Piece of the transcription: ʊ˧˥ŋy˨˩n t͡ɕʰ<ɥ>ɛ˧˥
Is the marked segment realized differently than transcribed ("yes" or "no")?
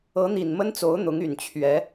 no